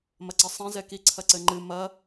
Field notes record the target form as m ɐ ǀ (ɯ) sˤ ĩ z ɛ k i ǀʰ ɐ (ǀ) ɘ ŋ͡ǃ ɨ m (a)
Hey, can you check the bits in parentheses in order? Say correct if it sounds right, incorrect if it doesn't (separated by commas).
incorrect, correct, incorrect